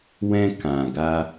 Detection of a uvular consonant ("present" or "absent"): absent